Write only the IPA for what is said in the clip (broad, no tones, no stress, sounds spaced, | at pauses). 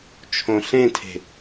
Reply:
t͡ʃʰ õ ɬ ẽ tʰ e̤